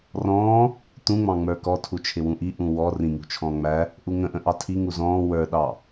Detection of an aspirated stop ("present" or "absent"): present